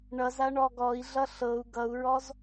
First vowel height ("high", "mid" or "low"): mid